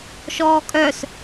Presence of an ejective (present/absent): present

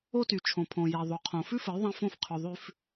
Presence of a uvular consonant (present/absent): present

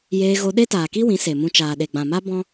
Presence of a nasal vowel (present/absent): present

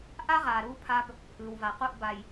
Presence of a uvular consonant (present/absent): present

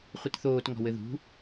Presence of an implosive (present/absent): absent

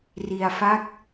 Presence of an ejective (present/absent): absent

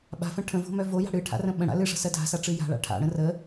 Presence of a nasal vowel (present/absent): present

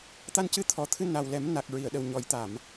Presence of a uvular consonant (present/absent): absent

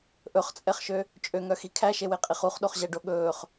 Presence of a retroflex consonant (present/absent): present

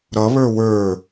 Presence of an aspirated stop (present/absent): absent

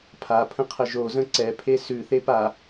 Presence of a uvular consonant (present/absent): present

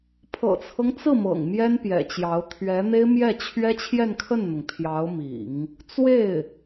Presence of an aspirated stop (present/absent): present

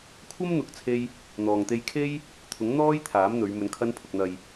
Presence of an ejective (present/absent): absent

